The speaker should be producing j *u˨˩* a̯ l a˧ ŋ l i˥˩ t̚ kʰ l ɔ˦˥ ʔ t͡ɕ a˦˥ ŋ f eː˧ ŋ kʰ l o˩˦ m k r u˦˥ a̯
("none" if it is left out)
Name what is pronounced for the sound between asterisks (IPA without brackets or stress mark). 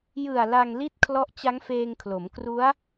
ɯ˨˩